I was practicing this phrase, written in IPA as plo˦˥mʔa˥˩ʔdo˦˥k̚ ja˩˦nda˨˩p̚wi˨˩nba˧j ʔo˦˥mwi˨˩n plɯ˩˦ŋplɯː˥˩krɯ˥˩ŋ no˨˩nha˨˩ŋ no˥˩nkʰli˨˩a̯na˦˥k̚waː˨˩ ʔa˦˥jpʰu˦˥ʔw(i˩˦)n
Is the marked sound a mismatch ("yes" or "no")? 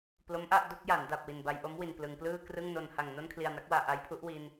yes